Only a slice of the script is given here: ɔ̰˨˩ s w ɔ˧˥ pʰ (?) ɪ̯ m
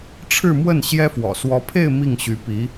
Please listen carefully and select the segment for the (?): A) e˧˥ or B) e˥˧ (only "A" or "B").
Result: B